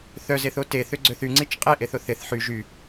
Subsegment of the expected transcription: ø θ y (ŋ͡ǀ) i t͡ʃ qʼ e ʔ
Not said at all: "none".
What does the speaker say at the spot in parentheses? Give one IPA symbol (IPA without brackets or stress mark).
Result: ŋ͡ǀ